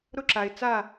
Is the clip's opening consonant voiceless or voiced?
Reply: voiced